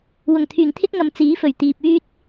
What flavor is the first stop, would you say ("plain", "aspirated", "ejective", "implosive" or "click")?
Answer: aspirated